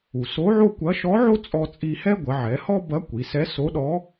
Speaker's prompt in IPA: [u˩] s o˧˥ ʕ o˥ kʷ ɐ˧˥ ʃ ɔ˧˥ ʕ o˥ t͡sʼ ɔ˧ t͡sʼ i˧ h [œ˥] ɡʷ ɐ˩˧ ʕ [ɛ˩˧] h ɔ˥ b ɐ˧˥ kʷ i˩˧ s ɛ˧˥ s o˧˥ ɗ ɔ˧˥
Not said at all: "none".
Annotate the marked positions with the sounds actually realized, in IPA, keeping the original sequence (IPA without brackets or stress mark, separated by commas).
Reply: u˩, ɛ˥, ɛ˩˧